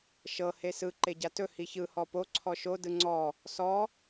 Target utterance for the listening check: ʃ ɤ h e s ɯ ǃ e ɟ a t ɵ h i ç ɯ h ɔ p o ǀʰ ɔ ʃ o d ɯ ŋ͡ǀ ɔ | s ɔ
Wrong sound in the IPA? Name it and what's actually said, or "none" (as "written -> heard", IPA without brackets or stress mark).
none